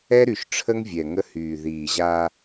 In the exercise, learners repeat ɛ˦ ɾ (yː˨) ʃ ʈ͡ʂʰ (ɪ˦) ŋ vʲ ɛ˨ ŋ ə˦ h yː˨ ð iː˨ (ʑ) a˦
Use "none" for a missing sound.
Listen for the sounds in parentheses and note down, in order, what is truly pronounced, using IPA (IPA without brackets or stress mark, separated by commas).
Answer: y˨, ə˦, ʑ